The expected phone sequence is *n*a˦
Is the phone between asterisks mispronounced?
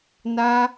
no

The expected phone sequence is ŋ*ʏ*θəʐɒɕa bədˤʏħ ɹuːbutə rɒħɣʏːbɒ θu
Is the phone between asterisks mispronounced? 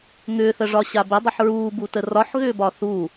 yes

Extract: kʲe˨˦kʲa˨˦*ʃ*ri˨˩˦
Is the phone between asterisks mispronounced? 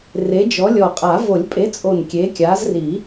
yes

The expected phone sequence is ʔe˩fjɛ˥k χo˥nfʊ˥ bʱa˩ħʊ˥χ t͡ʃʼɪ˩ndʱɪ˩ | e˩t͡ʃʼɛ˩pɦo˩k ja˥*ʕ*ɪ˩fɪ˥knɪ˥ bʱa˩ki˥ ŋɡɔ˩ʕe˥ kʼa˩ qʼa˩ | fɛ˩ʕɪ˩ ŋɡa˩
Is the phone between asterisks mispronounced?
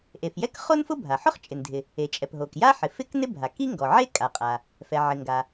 yes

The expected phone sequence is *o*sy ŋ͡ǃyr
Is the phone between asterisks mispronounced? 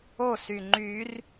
no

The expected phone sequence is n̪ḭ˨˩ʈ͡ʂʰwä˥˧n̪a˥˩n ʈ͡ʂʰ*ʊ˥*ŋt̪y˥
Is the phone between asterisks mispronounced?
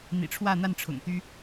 yes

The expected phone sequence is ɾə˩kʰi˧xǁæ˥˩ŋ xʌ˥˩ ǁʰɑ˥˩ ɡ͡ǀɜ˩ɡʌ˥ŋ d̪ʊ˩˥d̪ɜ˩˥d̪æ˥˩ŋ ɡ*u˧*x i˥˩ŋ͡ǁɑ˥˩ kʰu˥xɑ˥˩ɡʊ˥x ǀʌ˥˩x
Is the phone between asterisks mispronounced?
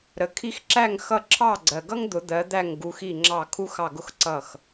no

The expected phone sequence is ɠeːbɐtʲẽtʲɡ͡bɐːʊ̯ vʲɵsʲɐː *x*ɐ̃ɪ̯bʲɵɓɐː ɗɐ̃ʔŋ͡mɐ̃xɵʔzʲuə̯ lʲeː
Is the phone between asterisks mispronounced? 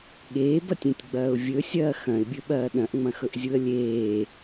no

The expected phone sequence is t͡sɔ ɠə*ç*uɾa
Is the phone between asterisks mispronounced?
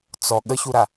no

